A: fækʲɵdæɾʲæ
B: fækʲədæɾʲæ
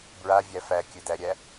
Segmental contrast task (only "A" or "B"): A